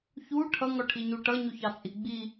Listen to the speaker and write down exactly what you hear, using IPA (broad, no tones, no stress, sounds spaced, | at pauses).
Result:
ç u ʈʰ ʌ ŋ ɔ ʈʰ i ɲ u ʈ ʌ ɲ u ç ɑ t͡sʼ i ɡ͡b i